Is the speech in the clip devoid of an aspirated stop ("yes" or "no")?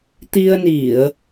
yes